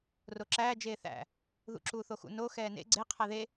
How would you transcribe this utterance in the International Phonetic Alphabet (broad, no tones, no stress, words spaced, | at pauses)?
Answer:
roǁæːd͡ʒeː θæ̰ | ðṵǁuːθoxṵ no xɛːnḛ ɡ͡ǀe qʰæðe